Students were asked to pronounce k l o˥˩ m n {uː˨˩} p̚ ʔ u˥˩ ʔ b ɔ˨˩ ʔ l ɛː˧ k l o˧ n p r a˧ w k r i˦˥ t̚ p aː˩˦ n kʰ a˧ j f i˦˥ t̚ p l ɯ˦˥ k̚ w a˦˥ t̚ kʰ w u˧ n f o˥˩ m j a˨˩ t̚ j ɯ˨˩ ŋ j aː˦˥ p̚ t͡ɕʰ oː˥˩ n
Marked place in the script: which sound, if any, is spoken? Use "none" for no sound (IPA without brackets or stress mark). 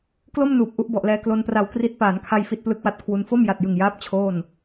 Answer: uː˨˩